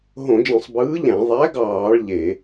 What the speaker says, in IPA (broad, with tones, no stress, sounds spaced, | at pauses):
ɦ õ˧˩˧ d͡ʒ ẽ˧˩˧ sˤ b ɯː˨˥ ʎ æ̃˧˩˧ ðˤ æ˨˥ ɡ ɑː˧˩˧ ɭ ʎ e˧˩˧